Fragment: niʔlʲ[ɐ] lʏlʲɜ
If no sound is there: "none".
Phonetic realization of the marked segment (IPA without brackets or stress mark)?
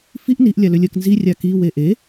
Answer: a